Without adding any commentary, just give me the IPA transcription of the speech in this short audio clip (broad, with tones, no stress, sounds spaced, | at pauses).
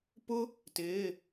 p ʊ˥ | t ɪː˩˧˩